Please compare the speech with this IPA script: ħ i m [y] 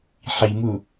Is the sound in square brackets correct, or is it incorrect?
incorrect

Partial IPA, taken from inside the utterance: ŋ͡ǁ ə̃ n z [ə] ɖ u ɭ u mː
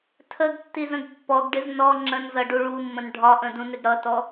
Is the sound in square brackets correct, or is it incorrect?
incorrect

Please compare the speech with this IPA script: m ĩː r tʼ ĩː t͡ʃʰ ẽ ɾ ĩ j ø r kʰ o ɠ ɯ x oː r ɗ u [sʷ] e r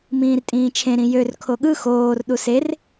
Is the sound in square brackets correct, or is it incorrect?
incorrect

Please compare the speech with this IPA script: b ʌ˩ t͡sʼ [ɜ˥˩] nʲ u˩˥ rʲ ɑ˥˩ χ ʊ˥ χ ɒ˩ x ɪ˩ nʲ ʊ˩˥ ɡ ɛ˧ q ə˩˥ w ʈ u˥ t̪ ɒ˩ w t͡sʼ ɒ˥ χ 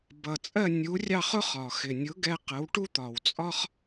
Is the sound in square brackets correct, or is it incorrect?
correct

